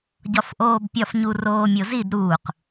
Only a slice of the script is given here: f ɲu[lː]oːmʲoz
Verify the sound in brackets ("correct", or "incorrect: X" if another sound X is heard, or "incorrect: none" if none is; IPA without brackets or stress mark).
incorrect: r